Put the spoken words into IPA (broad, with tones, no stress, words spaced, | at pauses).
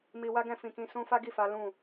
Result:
mi˧ wa˦ɡɛ̃˧fĩ˨kĩ˧ sũ˧ fa˦ɡi˦˨fa˨˦ lũ˦˨